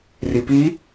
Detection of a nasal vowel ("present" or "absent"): absent